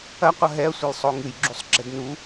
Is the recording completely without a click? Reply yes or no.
no